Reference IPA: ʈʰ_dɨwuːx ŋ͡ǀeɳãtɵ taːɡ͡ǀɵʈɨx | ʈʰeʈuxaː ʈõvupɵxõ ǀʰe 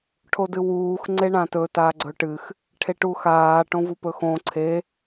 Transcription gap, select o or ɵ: o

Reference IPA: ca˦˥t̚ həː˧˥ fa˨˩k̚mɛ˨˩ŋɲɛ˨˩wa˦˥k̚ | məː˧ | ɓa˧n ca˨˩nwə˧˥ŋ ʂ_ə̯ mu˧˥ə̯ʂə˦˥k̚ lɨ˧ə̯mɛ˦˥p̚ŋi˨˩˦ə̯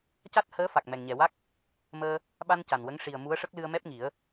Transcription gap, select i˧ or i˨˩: i˨˩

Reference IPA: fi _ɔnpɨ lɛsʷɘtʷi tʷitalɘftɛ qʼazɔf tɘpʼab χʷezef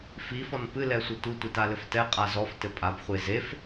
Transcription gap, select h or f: f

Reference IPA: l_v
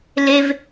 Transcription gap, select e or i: e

